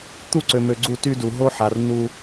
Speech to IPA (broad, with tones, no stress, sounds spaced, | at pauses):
t̪ u˦ ǀ ø˨ m ø˨ ɡ͡ǀ u˦˨ t y˦ d u˨ ɦ o˦ ħ a˨ r n u˦